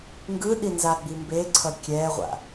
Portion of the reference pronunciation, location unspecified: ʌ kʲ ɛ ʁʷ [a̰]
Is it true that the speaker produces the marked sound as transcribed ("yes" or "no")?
yes